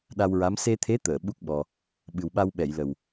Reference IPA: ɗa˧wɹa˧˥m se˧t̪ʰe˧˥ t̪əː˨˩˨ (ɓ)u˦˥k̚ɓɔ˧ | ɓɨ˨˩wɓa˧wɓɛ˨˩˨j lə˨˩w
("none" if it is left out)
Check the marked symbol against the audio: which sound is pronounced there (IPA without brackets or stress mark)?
ɓ